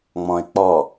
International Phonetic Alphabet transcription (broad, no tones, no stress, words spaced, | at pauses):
ŋ͡mɔ̃ɪ̯k͡pɔ